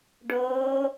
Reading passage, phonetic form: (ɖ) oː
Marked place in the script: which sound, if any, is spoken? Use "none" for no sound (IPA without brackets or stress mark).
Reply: ɖ